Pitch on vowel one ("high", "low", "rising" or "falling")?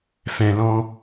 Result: low